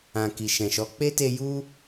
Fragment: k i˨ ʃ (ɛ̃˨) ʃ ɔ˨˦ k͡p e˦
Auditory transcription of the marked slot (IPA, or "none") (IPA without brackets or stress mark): ɛ̃˨